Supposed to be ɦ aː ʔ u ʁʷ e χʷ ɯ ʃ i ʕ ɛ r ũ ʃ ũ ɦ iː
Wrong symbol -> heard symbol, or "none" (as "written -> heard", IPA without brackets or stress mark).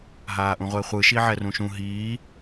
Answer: u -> ũ